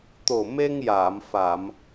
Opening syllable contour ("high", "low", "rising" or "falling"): low